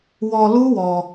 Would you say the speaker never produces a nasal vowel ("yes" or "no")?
yes